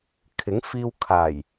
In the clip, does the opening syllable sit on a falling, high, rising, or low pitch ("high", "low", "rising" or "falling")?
rising